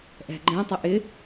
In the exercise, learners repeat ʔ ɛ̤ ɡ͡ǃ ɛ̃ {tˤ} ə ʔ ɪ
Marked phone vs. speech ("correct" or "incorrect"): correct